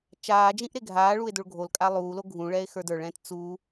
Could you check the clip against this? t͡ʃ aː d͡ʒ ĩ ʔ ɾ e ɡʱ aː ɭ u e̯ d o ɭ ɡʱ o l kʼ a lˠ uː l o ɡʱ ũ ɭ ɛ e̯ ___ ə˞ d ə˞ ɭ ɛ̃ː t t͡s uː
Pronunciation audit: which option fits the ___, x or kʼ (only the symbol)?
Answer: x